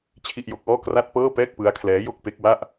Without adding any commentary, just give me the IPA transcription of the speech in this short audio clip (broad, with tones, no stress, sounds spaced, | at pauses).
t͡ɕʰ i˥˩ ʔ j o˦˥ k̚ ʔ ɔː˥˩ k r a˥˩ t̚ p ɤː˥˩ p ɛː˥˩ k̚ p ɯ˦˥ a̯ kʰ l ɛː˦˥ j o˥˩ k̚ p e˦˥ k̚ w a˥˩ ʔ